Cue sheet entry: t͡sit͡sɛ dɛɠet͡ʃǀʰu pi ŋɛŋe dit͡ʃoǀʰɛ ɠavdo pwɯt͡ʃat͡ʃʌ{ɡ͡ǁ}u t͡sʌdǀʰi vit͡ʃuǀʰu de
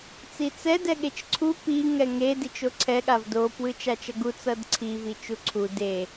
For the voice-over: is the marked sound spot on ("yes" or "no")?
no